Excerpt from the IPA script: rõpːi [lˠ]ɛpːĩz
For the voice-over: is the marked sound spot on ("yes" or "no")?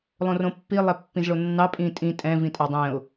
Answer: yes